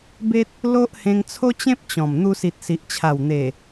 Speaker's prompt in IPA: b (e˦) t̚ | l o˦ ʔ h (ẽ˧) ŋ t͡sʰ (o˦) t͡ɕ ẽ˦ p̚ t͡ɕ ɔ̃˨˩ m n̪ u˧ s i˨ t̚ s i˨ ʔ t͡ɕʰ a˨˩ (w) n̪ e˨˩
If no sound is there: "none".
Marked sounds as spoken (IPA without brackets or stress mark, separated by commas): e˦, ẽ˧, o˦, w